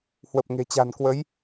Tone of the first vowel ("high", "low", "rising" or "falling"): low